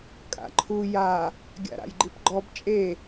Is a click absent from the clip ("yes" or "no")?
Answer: no